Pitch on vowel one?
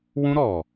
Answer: high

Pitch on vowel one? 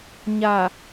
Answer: low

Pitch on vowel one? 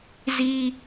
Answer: high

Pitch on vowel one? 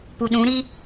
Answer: low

